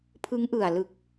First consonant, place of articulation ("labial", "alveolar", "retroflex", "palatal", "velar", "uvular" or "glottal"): labial